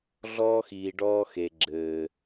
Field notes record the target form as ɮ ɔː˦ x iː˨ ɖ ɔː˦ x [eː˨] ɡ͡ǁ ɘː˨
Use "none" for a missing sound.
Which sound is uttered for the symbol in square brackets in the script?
e˨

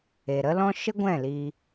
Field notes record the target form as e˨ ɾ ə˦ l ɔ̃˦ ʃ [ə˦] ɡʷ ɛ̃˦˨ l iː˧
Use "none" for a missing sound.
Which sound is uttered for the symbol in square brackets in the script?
ə˦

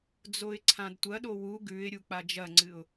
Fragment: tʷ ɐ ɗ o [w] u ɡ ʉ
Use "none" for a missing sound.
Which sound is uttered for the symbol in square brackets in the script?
w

